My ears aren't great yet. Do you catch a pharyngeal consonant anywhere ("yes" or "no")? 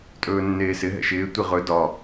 no